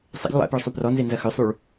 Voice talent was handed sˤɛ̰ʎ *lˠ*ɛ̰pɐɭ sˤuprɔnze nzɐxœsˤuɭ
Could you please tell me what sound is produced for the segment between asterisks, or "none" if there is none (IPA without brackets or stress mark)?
lˠ